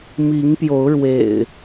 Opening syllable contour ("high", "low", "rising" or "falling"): rising